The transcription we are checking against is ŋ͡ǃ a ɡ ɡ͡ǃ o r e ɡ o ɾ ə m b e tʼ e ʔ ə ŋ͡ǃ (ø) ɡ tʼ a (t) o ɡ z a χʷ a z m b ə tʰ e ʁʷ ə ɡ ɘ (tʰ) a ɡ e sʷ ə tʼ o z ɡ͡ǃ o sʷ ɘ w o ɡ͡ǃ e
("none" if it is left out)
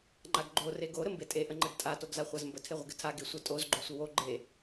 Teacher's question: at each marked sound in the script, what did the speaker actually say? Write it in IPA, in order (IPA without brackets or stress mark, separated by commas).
ɘ, t, tʰ